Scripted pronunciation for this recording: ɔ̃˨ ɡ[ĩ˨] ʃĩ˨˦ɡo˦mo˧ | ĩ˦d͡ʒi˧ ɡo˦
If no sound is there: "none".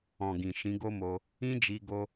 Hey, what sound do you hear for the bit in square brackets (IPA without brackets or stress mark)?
ĩ˨